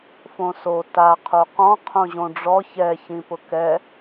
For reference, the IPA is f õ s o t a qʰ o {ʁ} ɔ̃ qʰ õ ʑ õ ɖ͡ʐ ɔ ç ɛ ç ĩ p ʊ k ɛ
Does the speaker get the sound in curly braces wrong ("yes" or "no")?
yes